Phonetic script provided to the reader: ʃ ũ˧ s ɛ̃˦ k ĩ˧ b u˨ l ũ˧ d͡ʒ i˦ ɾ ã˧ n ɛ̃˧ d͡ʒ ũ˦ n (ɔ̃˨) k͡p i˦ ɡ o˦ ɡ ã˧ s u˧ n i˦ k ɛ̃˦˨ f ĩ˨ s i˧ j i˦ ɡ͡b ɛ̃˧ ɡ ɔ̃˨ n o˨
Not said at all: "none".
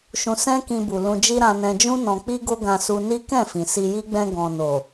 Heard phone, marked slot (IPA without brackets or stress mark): ɔ̃˧